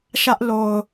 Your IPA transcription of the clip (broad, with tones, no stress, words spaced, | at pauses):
ʃä˦ʔlo˨ʊ̯